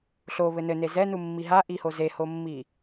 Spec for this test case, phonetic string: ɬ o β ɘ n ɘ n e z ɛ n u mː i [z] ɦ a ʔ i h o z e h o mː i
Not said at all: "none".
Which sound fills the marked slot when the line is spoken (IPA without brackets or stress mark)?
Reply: none